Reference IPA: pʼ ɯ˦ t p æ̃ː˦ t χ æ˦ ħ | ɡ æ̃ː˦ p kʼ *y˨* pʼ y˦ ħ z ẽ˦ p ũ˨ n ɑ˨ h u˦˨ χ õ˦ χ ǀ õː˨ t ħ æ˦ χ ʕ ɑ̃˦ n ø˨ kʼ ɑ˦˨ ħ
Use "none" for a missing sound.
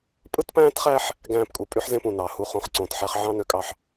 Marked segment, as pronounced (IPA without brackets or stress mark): u˨